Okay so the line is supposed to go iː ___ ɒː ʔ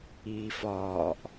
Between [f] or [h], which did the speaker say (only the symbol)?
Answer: f